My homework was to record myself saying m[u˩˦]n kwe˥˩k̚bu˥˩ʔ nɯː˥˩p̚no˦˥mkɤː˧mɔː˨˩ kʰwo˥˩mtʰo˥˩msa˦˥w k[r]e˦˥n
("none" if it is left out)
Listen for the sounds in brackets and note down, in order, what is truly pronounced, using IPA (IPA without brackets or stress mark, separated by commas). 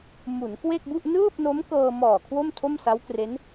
u˩˦, r